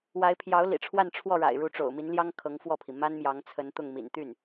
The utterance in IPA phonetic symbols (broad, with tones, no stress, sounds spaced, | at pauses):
w a˧˥ ɪ̯ pʰ j ɑ˧˥ ʊ̯ l ḭ˨˩ ʈ͡ʂʰ w a˥˧ n ʈ͡ʂʰ w ɔ˥˩ ɻ a̰˨˩ ɪ̯ ɻ u˧˥ ʈ͡ʂ o̰˨˩ ʊ̯ m i˧˥ n l j ɑ˥ ŋ kʰ ɤ˧˥ ŋ f w ɔ˥˩ pʰ i˩ m a˥ n m j ɑ˧˥ ŋ t͡sʰ ə˧˥ n t̪ ʊ˥˩ ŋ m ḭ˨˩ n t̪ y˥˩ n